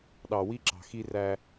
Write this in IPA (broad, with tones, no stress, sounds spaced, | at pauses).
ɗ ɑ˨ w i˦ ǁ ɑ̤˨ x i˦ r æ˦